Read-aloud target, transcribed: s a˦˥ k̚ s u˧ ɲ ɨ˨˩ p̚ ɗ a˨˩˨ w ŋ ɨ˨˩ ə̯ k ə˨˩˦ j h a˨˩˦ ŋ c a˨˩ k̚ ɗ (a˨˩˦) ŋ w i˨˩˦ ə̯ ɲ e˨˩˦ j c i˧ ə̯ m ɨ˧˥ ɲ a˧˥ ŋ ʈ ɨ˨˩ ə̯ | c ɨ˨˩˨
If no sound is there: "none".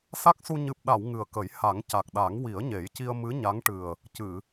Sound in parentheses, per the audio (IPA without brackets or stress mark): a˨˩˦